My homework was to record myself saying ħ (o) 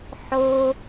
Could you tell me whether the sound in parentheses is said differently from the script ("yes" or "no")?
no